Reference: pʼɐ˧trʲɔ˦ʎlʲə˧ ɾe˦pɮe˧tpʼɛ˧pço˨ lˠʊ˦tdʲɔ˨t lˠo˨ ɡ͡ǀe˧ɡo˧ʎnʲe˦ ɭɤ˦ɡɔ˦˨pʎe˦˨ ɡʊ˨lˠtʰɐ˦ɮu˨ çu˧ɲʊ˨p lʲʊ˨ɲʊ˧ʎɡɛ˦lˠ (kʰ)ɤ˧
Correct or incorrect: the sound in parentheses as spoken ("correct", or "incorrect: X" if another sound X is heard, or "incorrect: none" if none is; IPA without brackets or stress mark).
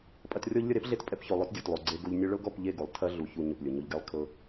correct